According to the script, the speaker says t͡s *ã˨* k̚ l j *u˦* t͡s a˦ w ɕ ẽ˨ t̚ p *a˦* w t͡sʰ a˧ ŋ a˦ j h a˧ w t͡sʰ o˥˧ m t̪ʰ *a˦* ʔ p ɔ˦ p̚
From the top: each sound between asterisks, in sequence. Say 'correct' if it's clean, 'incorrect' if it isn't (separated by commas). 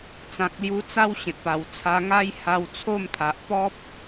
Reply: correct, incorrect, incorrect, incorrect